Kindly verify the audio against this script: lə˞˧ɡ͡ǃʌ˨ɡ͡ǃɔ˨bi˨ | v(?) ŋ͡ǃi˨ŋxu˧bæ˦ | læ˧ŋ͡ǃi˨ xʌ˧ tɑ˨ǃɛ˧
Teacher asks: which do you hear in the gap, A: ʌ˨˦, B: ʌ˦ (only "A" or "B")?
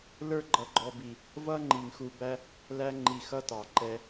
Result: B